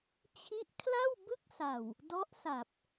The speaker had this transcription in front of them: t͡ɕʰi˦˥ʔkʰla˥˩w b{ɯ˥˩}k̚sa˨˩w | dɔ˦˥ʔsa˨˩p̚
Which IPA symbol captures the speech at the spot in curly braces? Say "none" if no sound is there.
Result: ɯ˥˩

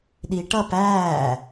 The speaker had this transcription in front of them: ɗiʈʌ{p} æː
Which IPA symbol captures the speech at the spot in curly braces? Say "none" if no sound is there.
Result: p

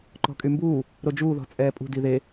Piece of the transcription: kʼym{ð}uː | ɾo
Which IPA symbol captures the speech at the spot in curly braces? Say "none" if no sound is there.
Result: b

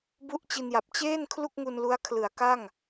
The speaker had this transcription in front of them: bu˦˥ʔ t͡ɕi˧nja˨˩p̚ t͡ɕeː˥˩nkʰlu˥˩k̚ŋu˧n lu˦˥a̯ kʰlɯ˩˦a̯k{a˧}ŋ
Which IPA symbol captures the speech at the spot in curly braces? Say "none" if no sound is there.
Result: a˥˩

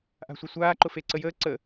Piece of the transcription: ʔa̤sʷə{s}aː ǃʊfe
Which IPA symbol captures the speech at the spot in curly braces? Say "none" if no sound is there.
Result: sʷ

